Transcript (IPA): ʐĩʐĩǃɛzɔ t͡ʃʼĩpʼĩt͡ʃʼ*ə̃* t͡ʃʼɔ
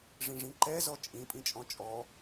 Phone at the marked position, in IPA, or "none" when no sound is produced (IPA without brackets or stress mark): ɔ̃